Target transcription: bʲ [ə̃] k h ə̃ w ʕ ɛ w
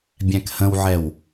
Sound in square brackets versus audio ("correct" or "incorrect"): incorrect